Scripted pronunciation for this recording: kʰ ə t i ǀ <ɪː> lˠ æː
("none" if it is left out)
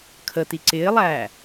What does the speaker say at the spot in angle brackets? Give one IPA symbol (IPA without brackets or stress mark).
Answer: ɪː